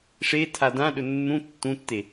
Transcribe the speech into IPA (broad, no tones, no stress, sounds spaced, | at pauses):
ʂ e tʰ a d ã ɗ ɵ nː ũ tː ũ tː e